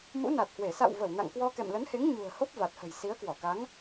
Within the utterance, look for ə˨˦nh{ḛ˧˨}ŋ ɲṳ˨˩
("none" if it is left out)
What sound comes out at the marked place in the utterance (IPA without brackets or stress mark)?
e˨˦